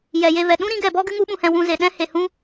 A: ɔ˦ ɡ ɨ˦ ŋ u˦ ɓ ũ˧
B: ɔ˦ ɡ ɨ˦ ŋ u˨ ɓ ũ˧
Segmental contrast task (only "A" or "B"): A